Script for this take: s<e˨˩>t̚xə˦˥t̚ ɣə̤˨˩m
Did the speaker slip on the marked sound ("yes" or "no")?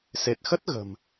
no